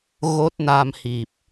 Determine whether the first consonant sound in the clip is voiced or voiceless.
voiced